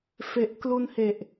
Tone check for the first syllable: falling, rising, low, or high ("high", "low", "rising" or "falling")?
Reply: low